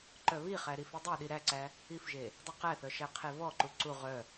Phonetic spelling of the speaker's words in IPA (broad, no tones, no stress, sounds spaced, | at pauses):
ǃ œ β i χ æ ɾ i f e dˤ ɜ ɗ i ɾ æ ǀ æ | i f ʒ e | dˤ œ q æ θ œ ʃ æ qʰ e v ɔ ǃ u ǀ u ʁ œ